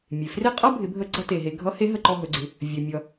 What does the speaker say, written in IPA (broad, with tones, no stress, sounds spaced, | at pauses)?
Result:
mʲ e˩ f r e˥ qʼ ʌ˥ bʱ ɪ˩˧ bʱ ə˧ ɡ͡ǀ ʌ˥ t e˩ ɦ e˧ ɡʱ ʌ˧˥ h e˧˥ ɦ ə˧ ǃ ɔ˧ ɦ ɵ˩˧ ɡ͡ǀ ɪ˩˧ | vʲ ɵ˩ mʲ ʌ˩